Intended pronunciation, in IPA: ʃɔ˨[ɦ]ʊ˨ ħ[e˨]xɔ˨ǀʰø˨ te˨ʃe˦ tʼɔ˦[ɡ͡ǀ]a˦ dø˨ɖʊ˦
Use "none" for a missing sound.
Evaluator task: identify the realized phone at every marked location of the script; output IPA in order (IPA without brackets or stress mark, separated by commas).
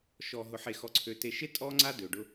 ɦ, e˨, ŋ͡ǀ